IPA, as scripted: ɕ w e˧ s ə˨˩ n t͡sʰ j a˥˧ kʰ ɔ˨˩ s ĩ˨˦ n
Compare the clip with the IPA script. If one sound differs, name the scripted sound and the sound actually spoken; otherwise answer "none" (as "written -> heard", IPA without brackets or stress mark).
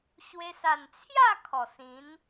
ə˨˩ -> a˨˩